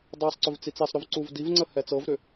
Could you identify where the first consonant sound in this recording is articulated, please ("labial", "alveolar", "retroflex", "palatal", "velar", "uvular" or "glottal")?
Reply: alveolar